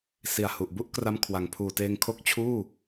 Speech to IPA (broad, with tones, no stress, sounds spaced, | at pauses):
s i˨˩ a̯ h u˨˩ ʔ b u˥˩ ʔ k r a˧ m kʰ w a˨˩ ŋ pʰ uː˨˩ t eː˧ ŋ kʰ o˥˩ k̚ t͡ɕʰ uː˥˩